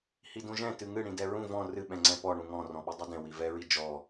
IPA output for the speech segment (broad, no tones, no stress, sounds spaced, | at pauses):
h i d ũ ʒ ɛ̃ t ɨ ŋ ɨ ɽ ĩ d ɛ ɹ ũ v ɔ̃ r ɨ ɓ ɛ̃ ŋ͡ǀ ɛ̃ p ɔ ɳ ũ ŋ ɔ̃ r ɔ̃ ɓ ɨ dˤ ɛ d ɛ̃ w i v ɛ ɹ i d͡ʒ ɔ